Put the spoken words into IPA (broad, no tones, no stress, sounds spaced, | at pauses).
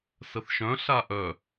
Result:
s ə θ ʃ œ̃ ɬ a ʔ œ